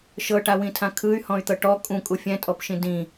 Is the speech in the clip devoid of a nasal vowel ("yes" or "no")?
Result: no